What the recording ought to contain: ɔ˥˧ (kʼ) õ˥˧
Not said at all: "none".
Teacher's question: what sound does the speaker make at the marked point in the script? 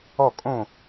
kʼ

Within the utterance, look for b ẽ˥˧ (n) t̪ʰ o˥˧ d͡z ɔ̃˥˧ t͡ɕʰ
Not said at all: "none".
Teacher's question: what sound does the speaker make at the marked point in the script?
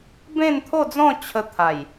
n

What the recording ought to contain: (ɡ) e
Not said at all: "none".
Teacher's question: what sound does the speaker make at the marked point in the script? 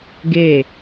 ɡ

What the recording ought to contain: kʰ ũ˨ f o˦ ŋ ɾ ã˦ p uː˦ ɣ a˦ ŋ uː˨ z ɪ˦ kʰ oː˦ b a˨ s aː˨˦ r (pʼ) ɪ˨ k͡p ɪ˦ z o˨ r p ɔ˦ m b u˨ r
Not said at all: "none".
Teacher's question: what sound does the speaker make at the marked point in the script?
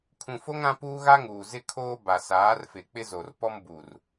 f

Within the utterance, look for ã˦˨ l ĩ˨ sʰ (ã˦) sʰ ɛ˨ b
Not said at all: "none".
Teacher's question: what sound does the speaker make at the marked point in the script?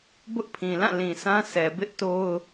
ã˦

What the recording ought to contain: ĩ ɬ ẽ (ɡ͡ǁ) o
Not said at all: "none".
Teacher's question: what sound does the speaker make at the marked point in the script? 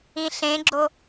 ɡ͡ǁ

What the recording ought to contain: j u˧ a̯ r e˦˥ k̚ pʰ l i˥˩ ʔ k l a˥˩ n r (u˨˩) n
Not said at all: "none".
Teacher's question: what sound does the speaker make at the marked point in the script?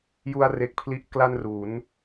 u˩˦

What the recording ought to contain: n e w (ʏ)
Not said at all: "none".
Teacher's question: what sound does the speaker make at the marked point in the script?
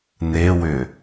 ʏ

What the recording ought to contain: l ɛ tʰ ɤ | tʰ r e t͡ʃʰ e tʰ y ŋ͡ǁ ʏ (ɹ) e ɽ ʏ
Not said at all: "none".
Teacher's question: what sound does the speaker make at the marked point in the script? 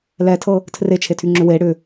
w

